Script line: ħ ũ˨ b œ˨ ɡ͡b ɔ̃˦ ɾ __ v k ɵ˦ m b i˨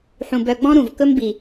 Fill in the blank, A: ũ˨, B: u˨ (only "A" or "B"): A